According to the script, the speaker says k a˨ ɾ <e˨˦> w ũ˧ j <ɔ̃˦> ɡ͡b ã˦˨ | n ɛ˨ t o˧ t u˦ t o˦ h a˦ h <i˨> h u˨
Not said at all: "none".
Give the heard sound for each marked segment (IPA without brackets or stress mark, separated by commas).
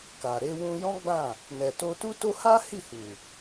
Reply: e˧, ɔ̃˦, i˦˨